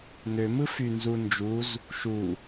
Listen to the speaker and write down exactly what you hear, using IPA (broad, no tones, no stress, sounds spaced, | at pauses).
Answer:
n ø m ɯ f y n z u n d͡ʒ u z | ʃ u